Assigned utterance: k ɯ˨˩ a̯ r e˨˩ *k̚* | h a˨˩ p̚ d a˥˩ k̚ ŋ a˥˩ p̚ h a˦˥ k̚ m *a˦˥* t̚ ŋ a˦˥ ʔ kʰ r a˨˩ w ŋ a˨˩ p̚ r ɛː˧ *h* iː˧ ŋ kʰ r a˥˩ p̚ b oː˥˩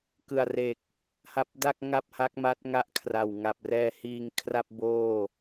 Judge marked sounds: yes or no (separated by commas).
yes, yes, yes